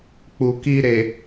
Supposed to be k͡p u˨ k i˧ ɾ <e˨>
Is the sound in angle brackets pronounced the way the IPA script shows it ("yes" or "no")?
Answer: yes